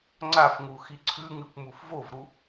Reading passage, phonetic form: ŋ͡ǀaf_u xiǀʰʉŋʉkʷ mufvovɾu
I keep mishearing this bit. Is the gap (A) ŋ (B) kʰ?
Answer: A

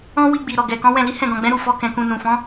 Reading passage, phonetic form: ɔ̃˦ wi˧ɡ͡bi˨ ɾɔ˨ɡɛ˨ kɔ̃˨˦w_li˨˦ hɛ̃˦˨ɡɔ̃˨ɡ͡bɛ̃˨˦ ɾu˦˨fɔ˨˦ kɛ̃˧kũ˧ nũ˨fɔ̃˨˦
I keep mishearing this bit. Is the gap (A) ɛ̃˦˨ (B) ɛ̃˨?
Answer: A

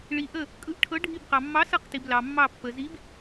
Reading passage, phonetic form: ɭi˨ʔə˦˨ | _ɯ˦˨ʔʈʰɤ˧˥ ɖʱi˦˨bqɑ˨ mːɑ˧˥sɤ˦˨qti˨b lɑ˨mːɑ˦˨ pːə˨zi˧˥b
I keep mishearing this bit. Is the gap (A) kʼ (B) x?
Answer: A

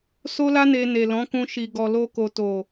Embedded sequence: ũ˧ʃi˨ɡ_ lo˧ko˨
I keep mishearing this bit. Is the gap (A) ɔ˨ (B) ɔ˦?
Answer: A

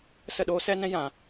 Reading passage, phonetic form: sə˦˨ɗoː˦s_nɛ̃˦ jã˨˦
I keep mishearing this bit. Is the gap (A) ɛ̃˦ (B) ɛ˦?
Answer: B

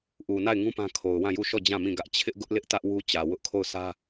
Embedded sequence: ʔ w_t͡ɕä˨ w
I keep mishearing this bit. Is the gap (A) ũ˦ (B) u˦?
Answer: B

